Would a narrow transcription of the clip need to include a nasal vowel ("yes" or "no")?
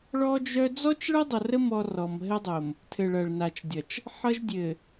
no